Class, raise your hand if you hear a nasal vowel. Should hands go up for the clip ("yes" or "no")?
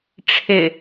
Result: no